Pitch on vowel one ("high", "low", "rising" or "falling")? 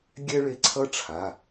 high